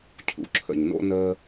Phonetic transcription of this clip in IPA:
cʰ ṵ˨ ǁʰ ə̰˨ ɲ n o̰˦ n əː˦

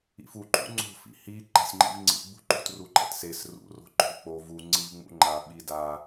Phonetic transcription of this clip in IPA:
ḭ f u ǃ ṵ ŋ͡ǀ o̤ f ḭ h i ǃ a̤ sʲ ŋ͡ǃ ḭ v ŋ͡ǀ ḭ ɡ͡b ṳ ǃ ṳ t r u ǃ ɛ̰ t s e s r ṵ r o̤ ǃ o̤ v k͡p o v u ŋ͡ǀ i v ŋ͡m ṵ ŋ͡ǃ a ɓ i d a

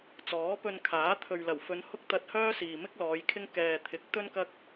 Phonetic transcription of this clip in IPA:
t͡s ɔː˨˥ p ɵ˧ n kʰ aː˨˥ t̪ʰ ɵ˨ ɥ l ɐ˨˩ w f ɵ˨˧ n h ʊ˥ k̚ t̪ ɐ˧ t̚ h œː˥ s iː˨ m ɪ˥ k̚ l ɔː˨˧ j kʰ ɪ˥ ŋ k ɛː˨ t̪ʰ ɪ˨˥ k̚ t̪ ɵ˥ n k ɐ˥ k̚

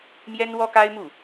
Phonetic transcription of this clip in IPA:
m j ɛ˥ n w ɔ˥ k a˥ ɪ̯ m u˥˩

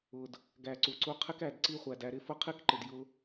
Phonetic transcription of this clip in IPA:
ʊ˨ d | ɡ æ˨ ǀ u˨ ǀ u˧ qʰ ɪ˦ k æ˨ d ǀ i˦ χʷ æ˨ d æ˧ ɾ ɪ˦ f ʊ˦ qʰ i˦ k ǃ ɪ˨ d j ʊ˧

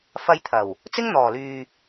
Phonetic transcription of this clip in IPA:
f ɐ˧ j t̪ʰ ɐ˨˩ w | t͡s ɪ˥ ŋ n̪ ɔː˨˩ l yː˨

